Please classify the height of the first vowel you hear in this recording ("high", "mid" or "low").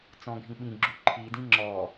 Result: mid